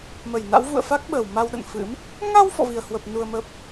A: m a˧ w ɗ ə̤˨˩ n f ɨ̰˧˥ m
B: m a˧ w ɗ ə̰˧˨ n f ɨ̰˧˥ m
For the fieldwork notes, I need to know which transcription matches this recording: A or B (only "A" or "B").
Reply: B